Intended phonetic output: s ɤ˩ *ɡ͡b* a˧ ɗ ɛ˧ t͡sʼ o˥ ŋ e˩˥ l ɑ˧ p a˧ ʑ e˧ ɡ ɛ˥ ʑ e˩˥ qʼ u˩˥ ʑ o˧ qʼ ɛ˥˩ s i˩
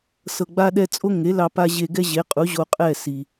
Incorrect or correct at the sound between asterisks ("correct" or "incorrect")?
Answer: correct